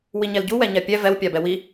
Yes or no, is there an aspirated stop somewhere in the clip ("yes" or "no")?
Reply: no